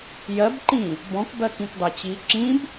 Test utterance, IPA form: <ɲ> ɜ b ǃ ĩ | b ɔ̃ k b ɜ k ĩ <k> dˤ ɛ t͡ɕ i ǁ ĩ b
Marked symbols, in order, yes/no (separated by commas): no, yes